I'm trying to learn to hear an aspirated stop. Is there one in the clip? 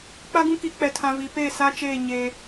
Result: yes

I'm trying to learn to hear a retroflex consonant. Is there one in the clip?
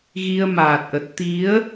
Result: no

